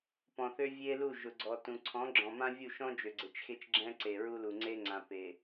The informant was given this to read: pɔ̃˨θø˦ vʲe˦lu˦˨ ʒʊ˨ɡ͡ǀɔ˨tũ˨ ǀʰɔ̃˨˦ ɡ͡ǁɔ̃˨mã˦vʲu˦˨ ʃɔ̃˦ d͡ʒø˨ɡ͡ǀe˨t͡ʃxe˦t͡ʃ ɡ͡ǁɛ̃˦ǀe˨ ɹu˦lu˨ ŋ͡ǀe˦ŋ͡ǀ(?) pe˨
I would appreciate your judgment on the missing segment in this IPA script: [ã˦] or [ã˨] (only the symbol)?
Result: ã˨